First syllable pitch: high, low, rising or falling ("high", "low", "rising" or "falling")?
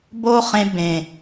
high